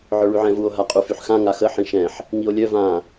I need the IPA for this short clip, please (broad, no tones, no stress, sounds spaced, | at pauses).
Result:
ʕ œ ɭ y ʕ ɛ̃ v u o̯ ɦ a qʼ u f y ħ x ã ŋ a x ə ħ ĩ ʃ ɛ̃ ħ | ŋ i o̯ lʲ œ v ã